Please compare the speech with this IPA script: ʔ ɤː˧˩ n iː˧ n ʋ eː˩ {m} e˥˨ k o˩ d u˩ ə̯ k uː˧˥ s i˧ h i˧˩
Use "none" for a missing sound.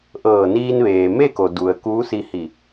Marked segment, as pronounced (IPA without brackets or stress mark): m